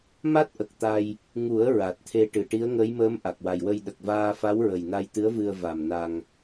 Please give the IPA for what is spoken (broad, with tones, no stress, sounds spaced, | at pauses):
m a˦˥ t̚ ʔ ə˨˩ k̚ t̪ a˧ j | ŋ u˨˩˦ ə̯ ɹ a˨˩ t̚ t̪ʰ e˧ ʈ ɨ˨˩˨ ʈ i˧˥ ə̯ ŋ ə˧˥ j m əː˧˥ m ʔ a˨˩ k̚ w a˨˩ j w ə˧ j ɗ ə˨˩ k̚ v aː˧ f a˧˥ w ɹ ə˨˩ j n a˧ j t̪ ɨ˧˥ ə̯ v ɨ˧ ə̯ v a˨˩ m n a˧ ŋ